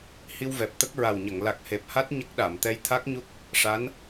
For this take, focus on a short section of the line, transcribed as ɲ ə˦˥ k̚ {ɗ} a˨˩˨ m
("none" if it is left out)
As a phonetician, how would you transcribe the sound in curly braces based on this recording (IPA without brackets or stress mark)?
ɗ